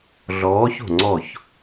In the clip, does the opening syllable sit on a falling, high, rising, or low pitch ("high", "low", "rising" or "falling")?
rising